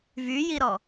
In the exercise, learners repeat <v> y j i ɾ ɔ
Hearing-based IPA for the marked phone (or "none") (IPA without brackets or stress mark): v